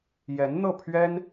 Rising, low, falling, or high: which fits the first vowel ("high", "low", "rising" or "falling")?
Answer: rising